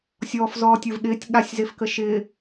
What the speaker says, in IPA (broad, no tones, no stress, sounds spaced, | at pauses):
sʲ ɔː f z ɔː tʲ ə˞ v ɠ ɪː tʲ ɠ a sʲ z e f k ə ʃ ɪː